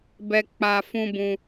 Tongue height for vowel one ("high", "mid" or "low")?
mid